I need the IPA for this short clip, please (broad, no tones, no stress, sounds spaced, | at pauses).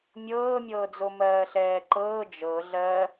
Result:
mʲ ɤː mʲ ɤː d͡z o m ɜː ɬ ɛː ǃ ɤː d͡ʒ ɤ ɮ ɜ